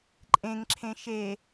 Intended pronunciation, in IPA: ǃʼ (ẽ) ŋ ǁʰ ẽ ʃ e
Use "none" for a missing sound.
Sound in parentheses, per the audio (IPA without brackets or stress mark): ẽ